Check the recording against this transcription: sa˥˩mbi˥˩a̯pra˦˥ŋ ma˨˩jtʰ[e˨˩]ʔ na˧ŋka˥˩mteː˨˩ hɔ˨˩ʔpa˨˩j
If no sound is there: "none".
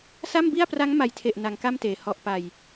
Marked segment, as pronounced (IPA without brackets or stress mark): e˨˩